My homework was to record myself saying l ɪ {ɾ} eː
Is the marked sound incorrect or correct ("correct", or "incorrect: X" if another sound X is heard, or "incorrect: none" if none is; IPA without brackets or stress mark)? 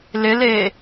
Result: incorrect: l